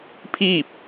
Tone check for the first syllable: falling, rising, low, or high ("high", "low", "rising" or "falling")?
falling